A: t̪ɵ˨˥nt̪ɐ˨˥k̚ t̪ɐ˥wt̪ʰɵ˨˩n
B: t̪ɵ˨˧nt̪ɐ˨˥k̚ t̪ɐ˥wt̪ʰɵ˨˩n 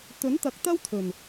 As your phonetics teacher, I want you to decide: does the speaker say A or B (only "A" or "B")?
A